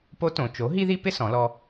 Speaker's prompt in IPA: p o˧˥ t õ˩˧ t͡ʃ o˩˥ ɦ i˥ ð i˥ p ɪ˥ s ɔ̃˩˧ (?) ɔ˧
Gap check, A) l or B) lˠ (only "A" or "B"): A